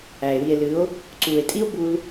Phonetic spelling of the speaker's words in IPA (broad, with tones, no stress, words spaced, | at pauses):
æ˨e̯ wi˨e̯lɨ˨˦o̯ | ǀu˨e̯tʼi˦o̯ bu˦l